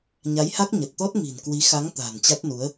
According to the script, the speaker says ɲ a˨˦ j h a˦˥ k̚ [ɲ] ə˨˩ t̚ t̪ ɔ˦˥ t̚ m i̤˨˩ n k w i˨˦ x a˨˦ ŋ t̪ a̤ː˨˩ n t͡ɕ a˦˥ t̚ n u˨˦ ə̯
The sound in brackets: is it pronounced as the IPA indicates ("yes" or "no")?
yes